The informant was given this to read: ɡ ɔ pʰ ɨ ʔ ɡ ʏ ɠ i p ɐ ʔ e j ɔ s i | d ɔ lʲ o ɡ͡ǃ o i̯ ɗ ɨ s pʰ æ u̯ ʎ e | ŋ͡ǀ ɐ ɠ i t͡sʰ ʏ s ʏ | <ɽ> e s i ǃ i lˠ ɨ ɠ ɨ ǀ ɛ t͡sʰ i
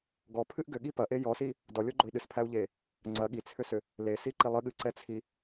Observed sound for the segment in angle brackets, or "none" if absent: l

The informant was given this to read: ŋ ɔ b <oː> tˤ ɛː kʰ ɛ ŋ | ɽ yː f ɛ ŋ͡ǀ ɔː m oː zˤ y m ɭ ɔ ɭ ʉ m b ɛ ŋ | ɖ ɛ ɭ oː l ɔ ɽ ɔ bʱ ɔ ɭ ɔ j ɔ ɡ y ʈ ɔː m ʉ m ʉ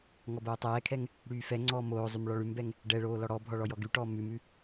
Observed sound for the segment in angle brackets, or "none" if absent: oː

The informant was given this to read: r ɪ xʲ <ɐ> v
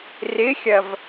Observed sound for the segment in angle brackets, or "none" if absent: ɐ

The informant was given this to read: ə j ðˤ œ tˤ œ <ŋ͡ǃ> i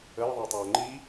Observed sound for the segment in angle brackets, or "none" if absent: ŋ͡ǃ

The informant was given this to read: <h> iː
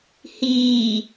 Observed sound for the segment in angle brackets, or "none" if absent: h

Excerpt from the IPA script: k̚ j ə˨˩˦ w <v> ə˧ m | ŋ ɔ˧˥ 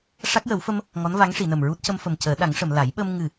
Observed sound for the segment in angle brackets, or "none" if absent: f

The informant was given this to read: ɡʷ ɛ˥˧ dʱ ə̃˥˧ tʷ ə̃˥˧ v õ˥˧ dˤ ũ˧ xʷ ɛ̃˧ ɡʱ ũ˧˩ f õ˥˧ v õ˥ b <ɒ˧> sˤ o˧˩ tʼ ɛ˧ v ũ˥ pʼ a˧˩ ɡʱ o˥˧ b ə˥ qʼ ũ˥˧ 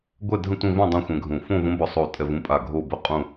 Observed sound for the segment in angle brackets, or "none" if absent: ɒ˧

